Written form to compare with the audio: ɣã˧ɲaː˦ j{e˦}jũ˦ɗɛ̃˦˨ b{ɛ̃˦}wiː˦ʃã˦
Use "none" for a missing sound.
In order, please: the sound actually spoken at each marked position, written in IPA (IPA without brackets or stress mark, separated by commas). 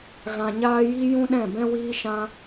i˦, ɛ̃˦